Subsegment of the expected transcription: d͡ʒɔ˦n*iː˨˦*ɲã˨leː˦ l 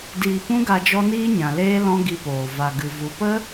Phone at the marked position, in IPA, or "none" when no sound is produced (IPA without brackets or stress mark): iː˦